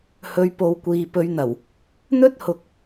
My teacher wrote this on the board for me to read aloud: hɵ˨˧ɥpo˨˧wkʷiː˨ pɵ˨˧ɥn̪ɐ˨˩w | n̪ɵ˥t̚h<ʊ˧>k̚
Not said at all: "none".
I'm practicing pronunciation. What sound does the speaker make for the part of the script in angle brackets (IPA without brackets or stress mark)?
ʊ˨